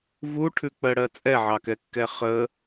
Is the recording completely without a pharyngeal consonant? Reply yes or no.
no